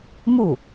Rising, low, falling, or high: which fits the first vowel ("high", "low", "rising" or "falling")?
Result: falling